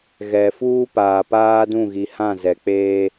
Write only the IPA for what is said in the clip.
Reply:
ɣ ɛ˨ f uː˦ p aː˨ p aː˦ d ũ˦˨ ɣ i˨ h ã˦˨ z ɛ˨ k͡p eː˦

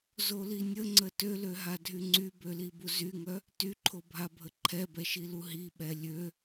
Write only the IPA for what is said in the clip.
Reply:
z o l i nʲ ə ŋ͡ǀ ə t ø l ø ɦ a dʱ y ŋ͡ǀ y b ø l i b u z y ŋ œ | t y ǃʰ o bʱ a bʱ ə ǃʰ ɛ b ɛ ʃ i l u ɦ i ɓ ɛ lʲ ø

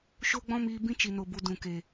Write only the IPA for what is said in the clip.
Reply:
ʃ o˦ ɡ͡b ɔ̃˦ m iː˧ b ĩ˦ t͡ʃ i˨ n o˨ b u˨ d ũ˨ k e˨

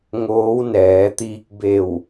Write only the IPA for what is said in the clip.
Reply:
ŋ oː˧˥ w n ɛː˩˧ t̪ iː˧ k̚ b e˧˩ w

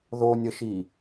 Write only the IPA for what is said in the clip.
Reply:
ð o nʲ ə ʃ i

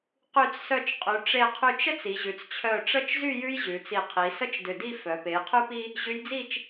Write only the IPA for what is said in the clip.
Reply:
q y˧˩ t͡s s œ˧˩ t͡ʃ qʼ ʉ˩˧ ʈ͡ʂ e˧˩ qʰ y˧˩ t͡ʃ ə˥ t͡s i˩˧ ʑ ʉ˩˧ t͡s t͡ɕʰ œ˧˩ ʈ͡ʂ ə˥˧ t͡ʃ z y˥˧ j ʉ˥ j ʑ ʉ˩˧ t͡s i˧˩ qʰ i˩˧ s ə˥ t͡ʃ d ʏ˧˩ d i˥˧ f œ˩˧ p e˩˧ j qʰ ʉ˥ p i˥ | ʑ ʉ˧ j d͡z i˥˧ t͡ʃ

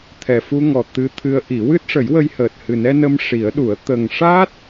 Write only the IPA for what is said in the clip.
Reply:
t̪ʰ ɛ˨˩ f u˧ ŋ ɔ˨˩ t̪ ɨ˧˥ t̪ʰ ɨ˧˥ ə̯ ʔ i˨˩˦ w ɨ˦˥ t̚ ʂ ə˨˩˦ j w ə˧ j h əː˨˩ t̚ h ɨ˨˩ n ɛ˧ n ə˧ m ʂ i˨˩˦ ə̯ ɗ u˨˩˦ ə̯ t̪ ə˨˩ ŋ ʂ a˦˥ t̚

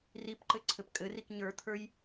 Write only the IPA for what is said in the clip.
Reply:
r i p ǃ ɘ ǀʰ ɘ p kʼ ɘ r i k ɲ ə˞ t̪ʰ ə˞ j

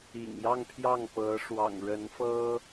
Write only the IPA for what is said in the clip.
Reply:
ḭ˨˩ ŋ j ɑ˥˧ ŋ pʰ j ɑ˥˩ ŋ p ɤ˧˥ ʂ w ɑ̰˨˩ ŋ ɻ ə˧˥ n f ɤ˥

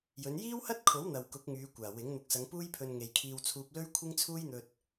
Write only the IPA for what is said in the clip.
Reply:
j ɵ˨˧ n j iː˥ w h ɐ˥ t̚ kʰ o˨˥ w n̪ ɐ˨ w k ʊ˨˥ k̚ ŋ yː˨˧ kʷ aː˨˩ w ɪ˨˥ ŋ n̪ ʊ˨˥ k̚ s ɐ˨˧ ŋ p uː˥ j pʰ ɵ˧ n ŋ e˨ j kʰ iː˧ w t͡sʰ uː˧ p̚ l ɵ˥ ɥ kʷʰ ɪ˥ ŋ t͡sʰ uː˥ j n̪ ɵ˧ t̚

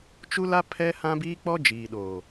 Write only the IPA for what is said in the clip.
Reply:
t͡ʃ u˦ l a˦ pʰ ɛ˦ h ã˦ b iː˦ k͡p ɔ˦ d͡ʒ iː˨ ɗ oː˨

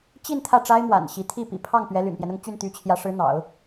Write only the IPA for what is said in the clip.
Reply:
t͡ɕ i˥˧ n t̪ʰ ä˥˩ ʈ͡ʂ a˥ ɪ̯ m w a̰˨˩ n ɕ i˧˥ t̪ʰ i˥˩ p ḭ˨˩ pʰ ɑ˥˩ ŋ p ɥ ɛ˧˥ l y̰˨˩ n p j ɛ˦ n ʊ˥˧ ŋ t͡ɕ y˥˩ n t̪ y˧˥ t͡ɕʰ j ä˧˥ ʂ ɻ̩˧˥ n̪ ɑ̰˨˩˦ ʊ̯

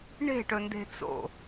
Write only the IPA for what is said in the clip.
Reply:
ɳ e̤ ʈ ɵ n d e̤ t͡s o̰

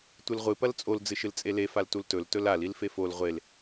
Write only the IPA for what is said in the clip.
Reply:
tʷ ɨ l ʁʷ ɨ p ɐ l t͡sʼ o l d͡z ɨ ʃ ɨ l t͡sʼ e l e f a l t u l t ɵ l t ɵ l a l i l f e f o l ʁʷ e l

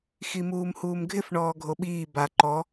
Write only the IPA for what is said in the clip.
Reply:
x i m uː m h uː m ɡʱ ɪ f ɳ ɔː ɡʱ o ɓ iː b a ǃ ɔ

